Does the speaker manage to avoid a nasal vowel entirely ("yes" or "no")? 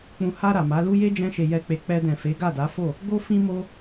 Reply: no